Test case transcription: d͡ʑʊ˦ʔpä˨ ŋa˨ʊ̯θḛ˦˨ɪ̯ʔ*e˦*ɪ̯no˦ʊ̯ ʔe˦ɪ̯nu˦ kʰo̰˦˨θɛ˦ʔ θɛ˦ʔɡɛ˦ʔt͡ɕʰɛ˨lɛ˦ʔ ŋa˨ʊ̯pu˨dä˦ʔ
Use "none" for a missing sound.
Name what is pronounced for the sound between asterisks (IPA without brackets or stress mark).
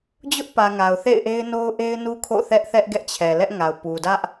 e˦